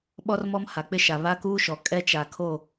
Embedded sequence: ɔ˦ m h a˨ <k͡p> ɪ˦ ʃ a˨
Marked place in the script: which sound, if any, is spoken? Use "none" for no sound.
k͡p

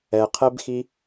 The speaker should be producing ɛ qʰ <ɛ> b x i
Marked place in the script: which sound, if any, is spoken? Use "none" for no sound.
ɛ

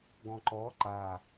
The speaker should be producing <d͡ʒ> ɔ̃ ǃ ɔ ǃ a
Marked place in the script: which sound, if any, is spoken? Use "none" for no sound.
ɡ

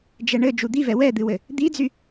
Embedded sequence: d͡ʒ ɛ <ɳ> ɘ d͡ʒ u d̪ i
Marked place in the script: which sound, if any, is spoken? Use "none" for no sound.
ɳ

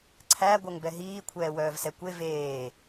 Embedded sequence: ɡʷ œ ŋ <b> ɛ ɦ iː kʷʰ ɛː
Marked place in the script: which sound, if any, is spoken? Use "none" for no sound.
b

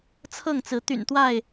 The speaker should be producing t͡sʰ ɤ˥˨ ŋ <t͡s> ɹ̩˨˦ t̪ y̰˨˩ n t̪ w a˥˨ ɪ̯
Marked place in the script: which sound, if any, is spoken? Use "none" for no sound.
t͡s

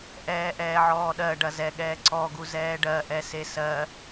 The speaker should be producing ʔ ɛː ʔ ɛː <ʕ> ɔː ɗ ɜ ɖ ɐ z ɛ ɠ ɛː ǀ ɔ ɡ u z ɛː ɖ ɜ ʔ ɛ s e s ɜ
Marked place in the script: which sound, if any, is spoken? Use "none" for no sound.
ʕ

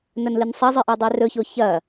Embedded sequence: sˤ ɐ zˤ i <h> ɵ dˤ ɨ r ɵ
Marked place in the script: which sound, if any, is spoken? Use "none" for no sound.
ʔ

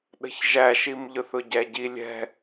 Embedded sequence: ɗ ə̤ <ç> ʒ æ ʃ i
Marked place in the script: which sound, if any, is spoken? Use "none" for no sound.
ç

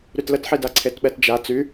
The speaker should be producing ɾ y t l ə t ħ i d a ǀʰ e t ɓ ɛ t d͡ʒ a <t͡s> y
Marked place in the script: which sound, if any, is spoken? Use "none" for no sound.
t͡s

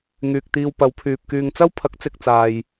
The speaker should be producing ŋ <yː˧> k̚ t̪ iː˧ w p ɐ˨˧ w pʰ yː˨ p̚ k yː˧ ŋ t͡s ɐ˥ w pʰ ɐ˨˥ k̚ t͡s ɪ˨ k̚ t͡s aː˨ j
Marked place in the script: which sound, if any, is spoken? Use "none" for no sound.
yː˨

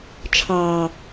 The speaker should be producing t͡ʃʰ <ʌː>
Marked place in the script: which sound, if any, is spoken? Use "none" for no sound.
ɑː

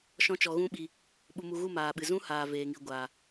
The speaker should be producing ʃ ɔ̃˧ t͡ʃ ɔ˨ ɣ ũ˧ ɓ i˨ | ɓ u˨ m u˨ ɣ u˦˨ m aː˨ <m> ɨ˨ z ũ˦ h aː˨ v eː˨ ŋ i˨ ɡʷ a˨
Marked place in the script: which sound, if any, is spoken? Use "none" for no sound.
ɓ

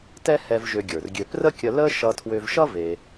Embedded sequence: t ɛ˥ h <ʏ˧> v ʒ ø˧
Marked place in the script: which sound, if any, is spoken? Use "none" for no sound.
ɛ˧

